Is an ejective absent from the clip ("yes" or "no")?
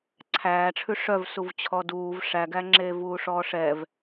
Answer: yes